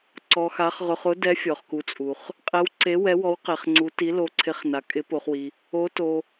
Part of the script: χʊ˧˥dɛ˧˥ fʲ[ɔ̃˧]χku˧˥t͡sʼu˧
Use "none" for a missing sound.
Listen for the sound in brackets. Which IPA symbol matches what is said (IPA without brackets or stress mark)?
ɔ˧